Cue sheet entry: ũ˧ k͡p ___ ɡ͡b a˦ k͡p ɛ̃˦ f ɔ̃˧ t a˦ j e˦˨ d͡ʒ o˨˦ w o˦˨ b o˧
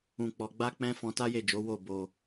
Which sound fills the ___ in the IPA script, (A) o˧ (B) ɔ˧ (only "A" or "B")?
B